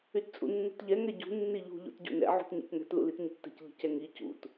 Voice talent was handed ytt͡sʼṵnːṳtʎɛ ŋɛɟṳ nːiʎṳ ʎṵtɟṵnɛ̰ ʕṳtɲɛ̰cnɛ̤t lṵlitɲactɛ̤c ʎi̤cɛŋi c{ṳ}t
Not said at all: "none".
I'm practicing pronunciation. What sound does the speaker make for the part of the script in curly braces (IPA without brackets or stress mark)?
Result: ṵ